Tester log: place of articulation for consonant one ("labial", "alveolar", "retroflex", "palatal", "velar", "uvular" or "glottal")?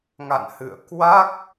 velar